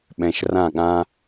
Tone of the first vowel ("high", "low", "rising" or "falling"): low